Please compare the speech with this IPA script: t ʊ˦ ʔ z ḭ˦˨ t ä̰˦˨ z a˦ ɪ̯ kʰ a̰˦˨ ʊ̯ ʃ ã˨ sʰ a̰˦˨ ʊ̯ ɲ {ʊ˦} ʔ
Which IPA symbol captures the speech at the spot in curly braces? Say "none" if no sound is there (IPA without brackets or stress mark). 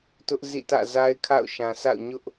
ʊ˦